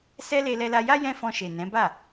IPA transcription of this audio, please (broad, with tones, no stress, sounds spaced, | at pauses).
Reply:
s ɛ˦ l e˧ l ɛ˧ l a˧ j a˦ j ɛ̃˦ f ɔ̃˧ ʃ e˨ n ɛ̃˨˦ b a˦˨